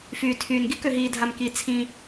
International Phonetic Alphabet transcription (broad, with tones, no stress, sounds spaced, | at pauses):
f yː˩ tʰ yː˩ n ɡ i˥ k ø˩ ɦ iː˩ dʱ a˩ m k i˩ t͡sʰ ĩ˩